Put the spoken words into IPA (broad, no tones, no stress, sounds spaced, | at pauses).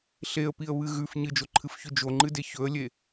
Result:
ɬ e ə̯ p i ə̯ β ɨ ɣ ʉ f ɲ ɨ d͡ʒ o ǃʰ ɨ f ç ʉ d͡ʒ o ŋ͡ǃ ɨ d e ç ɵ ə̯ lʲ e